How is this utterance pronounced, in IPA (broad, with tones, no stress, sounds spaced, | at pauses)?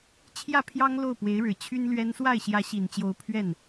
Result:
t͡ɕʰ j ä˥˩ pʰ j ɑ˥ ŋ l o˥˩ ʊ̯ p w e˧˥ ɪ̯ ɻ ɻ̩˨˩ t͡ɕʰ y˥ n l ɥ ɛ˥ n s w a˥˩ ɪ̯ ɕ j ä˧˥ ɕ i˨˩ n t͡ɕ j o˧˥ ʊ̯ pʰ ɥ ɛ˥˩ n